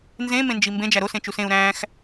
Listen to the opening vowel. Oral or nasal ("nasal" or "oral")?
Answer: nasal